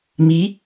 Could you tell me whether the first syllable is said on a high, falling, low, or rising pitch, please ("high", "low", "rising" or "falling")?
rising